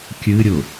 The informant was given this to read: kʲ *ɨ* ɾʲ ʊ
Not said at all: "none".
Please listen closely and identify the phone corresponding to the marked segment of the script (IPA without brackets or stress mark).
ɨ